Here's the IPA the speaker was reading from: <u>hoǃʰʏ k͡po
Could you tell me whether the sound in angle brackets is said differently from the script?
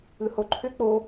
yes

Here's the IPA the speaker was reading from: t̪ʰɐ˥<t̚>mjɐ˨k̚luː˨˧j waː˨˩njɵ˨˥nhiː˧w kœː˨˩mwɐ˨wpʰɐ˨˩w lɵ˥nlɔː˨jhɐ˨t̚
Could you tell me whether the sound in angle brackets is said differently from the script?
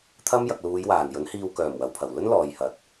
yes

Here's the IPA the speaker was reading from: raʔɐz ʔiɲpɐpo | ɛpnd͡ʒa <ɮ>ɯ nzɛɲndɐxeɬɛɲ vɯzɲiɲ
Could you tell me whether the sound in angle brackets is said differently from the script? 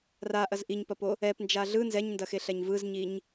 no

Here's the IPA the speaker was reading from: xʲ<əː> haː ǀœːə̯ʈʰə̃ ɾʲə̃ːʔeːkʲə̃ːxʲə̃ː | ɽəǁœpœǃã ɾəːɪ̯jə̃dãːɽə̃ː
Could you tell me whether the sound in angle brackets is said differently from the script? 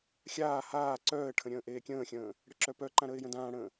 yes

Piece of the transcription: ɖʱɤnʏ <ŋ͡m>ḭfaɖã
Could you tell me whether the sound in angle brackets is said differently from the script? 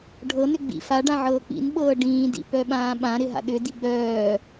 yes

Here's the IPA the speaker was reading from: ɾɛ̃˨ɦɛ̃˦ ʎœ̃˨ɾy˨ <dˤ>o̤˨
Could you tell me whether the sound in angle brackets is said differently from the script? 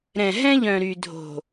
yes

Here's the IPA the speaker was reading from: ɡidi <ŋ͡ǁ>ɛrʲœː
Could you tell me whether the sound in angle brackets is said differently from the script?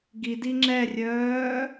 no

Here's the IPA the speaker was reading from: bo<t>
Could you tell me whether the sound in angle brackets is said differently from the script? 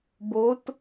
no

